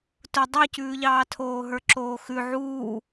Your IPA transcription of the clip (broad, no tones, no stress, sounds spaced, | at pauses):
t ʊ dˤ ʉ c ʉː ʎ ɑː tʰ oː ɦ ə˞ ǁ oː x ʉ ʕ uː